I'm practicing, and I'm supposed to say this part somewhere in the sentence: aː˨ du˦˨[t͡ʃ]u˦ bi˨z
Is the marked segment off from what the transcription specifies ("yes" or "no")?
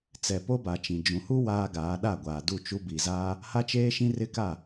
no